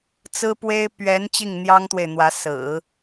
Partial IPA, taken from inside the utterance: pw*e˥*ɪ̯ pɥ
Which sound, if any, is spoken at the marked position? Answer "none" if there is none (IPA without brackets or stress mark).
e˥